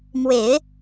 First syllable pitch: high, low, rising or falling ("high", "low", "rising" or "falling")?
low